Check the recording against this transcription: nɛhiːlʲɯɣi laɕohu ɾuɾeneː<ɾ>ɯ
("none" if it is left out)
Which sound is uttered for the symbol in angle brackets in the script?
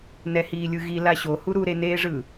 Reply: ʐ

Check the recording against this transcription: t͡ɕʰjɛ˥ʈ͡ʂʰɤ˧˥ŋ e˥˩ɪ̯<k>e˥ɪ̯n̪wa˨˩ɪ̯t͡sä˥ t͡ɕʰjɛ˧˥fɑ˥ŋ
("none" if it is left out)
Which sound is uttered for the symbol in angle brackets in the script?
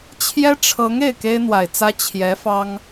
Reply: k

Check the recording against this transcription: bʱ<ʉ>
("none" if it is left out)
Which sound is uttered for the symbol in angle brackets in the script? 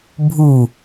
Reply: u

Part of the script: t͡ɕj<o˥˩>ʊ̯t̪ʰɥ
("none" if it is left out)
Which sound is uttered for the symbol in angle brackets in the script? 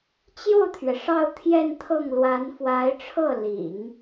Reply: o˥˩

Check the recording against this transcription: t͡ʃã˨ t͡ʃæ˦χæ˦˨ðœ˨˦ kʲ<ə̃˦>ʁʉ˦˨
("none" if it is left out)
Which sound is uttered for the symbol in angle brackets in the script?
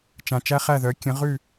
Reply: ə̃˨˦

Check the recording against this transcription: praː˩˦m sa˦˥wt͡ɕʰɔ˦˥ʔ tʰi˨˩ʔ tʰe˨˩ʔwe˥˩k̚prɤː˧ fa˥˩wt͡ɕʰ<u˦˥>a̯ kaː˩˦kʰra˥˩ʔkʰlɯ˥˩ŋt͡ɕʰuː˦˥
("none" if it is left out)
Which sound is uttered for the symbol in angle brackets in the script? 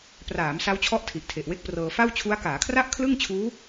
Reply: u˦˥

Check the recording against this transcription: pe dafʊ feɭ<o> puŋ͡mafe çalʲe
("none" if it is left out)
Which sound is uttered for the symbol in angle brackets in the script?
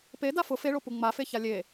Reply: o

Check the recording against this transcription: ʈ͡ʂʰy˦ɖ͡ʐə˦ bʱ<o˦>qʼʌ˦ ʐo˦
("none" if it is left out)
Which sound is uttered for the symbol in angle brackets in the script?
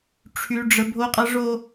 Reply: o˦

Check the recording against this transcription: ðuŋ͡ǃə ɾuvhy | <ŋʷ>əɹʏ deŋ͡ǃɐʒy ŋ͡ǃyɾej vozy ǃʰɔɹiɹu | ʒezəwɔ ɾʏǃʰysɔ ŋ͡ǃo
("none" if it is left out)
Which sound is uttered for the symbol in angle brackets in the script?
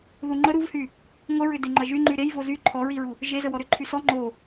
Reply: ŋʷ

